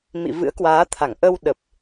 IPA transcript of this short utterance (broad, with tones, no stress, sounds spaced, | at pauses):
m ḭ˧˨ v ɨ̰˧˥ ə̯ k w aː˨˦ t̪ʰ a˧˩ ŋ ʔ ə˧ w ɗ ə˨˩ p̚